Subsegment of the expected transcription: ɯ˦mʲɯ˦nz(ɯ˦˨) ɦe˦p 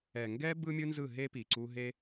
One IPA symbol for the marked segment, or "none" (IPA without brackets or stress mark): ɯ˦˨